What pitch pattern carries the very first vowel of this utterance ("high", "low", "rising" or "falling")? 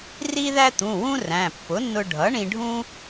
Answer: high